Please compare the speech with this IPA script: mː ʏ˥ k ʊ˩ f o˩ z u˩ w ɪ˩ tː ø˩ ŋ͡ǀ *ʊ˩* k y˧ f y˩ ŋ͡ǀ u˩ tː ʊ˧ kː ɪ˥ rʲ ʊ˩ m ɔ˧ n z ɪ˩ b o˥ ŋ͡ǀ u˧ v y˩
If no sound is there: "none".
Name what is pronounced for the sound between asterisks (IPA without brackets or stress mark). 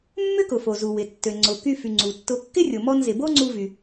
ʊ˩